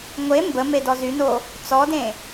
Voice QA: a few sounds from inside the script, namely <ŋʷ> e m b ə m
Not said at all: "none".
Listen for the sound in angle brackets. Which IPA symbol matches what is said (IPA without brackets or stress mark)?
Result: ŋʷ